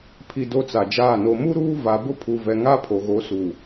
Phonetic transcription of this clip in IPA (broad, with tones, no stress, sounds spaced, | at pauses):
pʰ i˨ d o˦ t͡s a˨ d͡ʒ aː˦˨ n o˨ m u˦ ɾ uː˦ v a˨ b ʊ˦ pʰ u˨ v ɛ˨ ŋ a˦ pʰ o˨ ɣ o˨˦ s u˨